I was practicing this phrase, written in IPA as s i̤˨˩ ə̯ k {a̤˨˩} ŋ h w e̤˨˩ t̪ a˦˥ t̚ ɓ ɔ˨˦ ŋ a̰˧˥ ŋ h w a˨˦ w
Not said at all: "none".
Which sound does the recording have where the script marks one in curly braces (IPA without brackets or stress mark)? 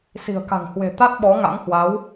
a̤˨˩